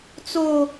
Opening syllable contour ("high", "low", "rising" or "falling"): high